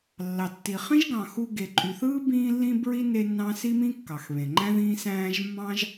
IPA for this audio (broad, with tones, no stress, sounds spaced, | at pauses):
lː ɑ˩ tː i˩ χ ĩ˥ ʒ ɡ ɑ̃˩ x u˧ ɡ e˩ ǃʼ y˩ θ ɯː˥ b ĩː˧ lː ĩ˧ b ɹ i˧ n e˥ nː ɑ̃˥ s i˥ m ĩ˥ kː ɑ˩ x β ẽ˩ ŋ͡ǃ æ̃˥ ð ĩː˥ s æ̃ː˥ ʒ mː ɑ̃˥ ʒ